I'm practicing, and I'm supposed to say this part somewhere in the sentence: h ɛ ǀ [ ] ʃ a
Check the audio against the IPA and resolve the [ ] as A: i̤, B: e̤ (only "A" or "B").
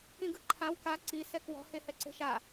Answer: B